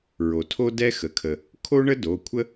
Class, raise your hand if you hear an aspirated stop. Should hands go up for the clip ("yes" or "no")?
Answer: yes